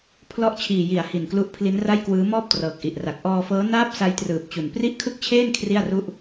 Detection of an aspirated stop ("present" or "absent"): present